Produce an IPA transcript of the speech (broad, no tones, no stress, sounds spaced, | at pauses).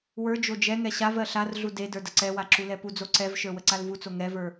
w ə˞ d͡ʒ o d͡ʒ ɛ ŋ ɛ ɕ a v ɜ ɬ a r ɮ u d e d ə˞ d ə ǀ ɛ w a ǁ u l ɛ p u d͡z o ǀ ɛ v ʃ ə˞ w ə ǀ a l v u t͡s o ŋ ɛ v ə˞